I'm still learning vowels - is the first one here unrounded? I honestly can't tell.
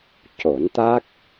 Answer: no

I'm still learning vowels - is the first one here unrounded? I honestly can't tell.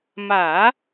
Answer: yes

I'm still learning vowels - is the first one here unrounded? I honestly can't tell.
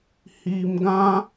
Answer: yes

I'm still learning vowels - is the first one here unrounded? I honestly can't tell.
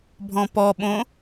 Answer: no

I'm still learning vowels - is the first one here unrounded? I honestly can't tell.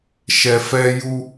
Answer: yes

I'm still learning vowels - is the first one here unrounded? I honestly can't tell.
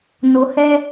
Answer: no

